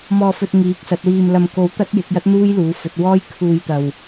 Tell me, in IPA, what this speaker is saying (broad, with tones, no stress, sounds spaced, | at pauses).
m ɔː˧ f ɵ˧ t̚ ŋ iː˨˥ k̚ s ɐ˨˥ t̚ w iː˧ m l ɐ˧ m k o˧ w t̪ ɐ˥ t̚ j ɪ˨˥ k̚ j ɐ˥ t̚ n̪ uː˥ j l uː˨˥ f ɵ˨˥ t̚ w ɔː˥ j kʰ uː˧ j t̪ ɐ˧ w